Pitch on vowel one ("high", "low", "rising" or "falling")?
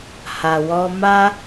low